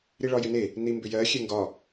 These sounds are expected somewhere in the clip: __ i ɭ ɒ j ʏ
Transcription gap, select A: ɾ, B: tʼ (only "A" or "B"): A